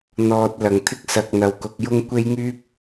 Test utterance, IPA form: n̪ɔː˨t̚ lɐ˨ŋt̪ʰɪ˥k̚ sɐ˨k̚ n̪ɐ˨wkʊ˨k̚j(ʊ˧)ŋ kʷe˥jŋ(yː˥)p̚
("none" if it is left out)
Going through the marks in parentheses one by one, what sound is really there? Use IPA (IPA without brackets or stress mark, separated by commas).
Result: ʊ˥, yː˥